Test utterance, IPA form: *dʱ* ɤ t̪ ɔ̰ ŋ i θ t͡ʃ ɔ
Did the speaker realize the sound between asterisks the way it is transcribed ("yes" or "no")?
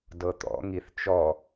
no